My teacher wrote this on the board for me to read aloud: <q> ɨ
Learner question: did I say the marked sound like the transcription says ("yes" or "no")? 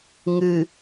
no